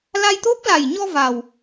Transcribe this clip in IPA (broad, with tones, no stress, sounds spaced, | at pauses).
l a˧ j t̪ o˦˥ p̚ l a˨˩ j ɲ ɔ˧ v a˨˩ w